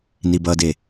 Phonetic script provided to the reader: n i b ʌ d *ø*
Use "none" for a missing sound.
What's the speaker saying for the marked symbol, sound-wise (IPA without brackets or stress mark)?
e